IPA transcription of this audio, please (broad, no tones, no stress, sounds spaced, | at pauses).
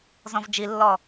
z ɔ̃ v d͡ʒ i lː ɔ